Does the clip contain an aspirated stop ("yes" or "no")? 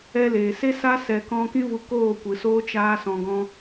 no